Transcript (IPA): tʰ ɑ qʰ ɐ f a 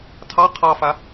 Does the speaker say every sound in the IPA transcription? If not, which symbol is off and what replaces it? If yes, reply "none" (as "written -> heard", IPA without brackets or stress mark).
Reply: ɐ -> ɑ